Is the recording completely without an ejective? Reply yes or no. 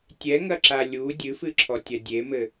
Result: yes